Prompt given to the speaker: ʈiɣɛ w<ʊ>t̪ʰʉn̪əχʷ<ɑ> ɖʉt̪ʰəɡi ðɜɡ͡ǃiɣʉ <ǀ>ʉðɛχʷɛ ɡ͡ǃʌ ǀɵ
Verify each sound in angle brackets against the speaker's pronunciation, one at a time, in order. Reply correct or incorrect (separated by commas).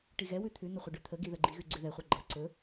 incorrect, incorrect, incorrect